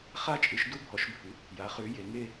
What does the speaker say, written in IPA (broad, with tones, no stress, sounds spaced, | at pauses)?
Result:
χ a˦˨ t͡ʃʼ ɨ˩˧ ʃ d u˦˨ bʱ ɔ˩˧ ʃ bʱ ɨ˩˧ | j a˩˧ χ ʉ˩˧ j e˩˧ ŋ e˦˨